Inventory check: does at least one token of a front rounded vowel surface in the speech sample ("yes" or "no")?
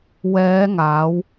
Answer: no